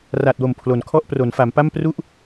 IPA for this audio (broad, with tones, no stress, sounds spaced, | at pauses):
r a˨˩ t̚ w o˨˩ m pʰ l o˨˩ n kʰ ɔ˥˩ ʔ p r o˩˦ n f a˩˦ m p a˥˩ m p r u˥˩ ʔ